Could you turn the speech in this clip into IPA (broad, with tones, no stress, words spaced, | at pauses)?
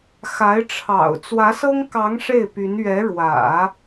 xa˧˥ɪ̯ʈ͡ʂʰɑ̰˨˩ʊ̯ t͡swä˧˥sɤ˥ŋkɑ˧˥ŋ ʂe˥˩ɪ̯py˧˥n ɥɛ˧˥ɻwä̰˨˩˦